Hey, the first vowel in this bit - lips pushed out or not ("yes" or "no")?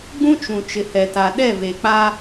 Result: yes